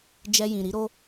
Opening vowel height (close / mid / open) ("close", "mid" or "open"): mid